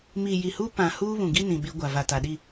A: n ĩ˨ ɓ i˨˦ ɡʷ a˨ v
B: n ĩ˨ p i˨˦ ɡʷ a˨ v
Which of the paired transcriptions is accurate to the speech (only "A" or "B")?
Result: A